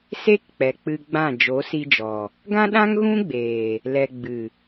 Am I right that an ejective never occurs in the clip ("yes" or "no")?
yes